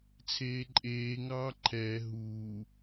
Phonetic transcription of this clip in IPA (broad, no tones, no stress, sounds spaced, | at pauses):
t͡sʰ eː ǃʼ eː ŋ ɑː ǃʰ ɛː ɦ uː